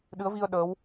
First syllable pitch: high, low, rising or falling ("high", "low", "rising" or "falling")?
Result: rising